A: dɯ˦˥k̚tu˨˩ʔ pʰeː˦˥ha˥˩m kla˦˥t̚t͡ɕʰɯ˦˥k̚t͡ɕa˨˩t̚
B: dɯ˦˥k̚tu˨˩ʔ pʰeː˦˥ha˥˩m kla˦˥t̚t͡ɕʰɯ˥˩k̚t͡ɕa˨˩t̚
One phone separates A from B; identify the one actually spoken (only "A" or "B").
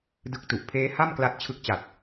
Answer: A